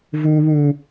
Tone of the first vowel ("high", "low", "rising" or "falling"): high